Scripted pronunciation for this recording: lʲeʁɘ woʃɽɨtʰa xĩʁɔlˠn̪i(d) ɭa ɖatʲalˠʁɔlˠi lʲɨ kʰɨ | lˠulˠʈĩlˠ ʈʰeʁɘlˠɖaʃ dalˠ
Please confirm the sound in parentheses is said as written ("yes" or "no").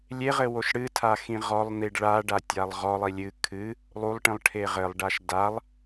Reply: no